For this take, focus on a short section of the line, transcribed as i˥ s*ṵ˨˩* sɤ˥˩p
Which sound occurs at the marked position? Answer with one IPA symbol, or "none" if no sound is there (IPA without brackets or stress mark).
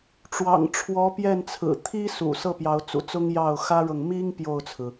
ṵ˨˩